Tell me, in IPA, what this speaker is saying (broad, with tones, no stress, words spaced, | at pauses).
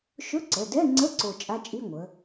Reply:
ʃɵ˧˥˧ǀə˩˧˩dɛ˧˥˧ŋ͡ǀə˧˥˧ ǀo˦˨ t͡ʃʼa˧˥˧t͡ʃʼi˧˥˧ŋʷə˩˧